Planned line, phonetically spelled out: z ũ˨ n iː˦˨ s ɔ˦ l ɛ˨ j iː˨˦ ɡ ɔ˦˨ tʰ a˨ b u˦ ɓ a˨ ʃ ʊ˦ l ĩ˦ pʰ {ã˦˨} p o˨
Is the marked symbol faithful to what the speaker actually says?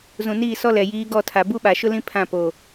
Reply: yes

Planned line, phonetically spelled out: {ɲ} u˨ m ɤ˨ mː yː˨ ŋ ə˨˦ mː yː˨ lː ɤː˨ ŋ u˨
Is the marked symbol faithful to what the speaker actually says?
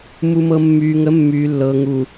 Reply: no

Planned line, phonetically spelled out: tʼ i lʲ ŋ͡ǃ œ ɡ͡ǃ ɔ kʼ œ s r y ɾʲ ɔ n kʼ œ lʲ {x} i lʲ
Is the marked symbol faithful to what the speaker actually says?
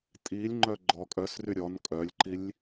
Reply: no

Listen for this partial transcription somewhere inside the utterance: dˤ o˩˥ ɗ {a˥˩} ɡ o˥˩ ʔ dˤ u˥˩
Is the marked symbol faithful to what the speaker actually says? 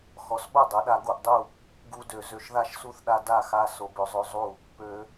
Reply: no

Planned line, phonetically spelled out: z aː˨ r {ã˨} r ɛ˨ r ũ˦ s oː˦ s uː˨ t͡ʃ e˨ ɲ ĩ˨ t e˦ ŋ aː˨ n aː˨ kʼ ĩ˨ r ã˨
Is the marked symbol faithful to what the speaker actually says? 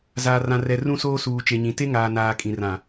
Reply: yes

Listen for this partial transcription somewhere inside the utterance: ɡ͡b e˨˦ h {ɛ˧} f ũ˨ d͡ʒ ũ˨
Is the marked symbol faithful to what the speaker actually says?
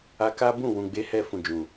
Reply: yes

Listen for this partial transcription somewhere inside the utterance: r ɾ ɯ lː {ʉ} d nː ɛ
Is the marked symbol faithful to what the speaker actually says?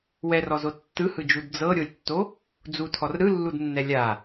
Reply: no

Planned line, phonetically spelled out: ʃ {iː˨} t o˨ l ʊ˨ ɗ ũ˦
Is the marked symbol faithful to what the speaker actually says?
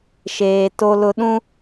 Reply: no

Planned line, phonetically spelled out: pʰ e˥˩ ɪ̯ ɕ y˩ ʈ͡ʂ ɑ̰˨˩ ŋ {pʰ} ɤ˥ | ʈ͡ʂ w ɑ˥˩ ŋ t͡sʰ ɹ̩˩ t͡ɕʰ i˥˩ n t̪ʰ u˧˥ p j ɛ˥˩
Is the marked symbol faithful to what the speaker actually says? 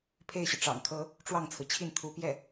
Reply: no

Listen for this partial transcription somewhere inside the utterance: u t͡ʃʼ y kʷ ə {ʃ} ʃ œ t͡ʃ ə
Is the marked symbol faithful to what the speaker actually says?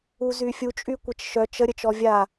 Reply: no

